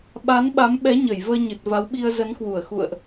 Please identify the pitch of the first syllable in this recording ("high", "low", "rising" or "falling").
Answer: rising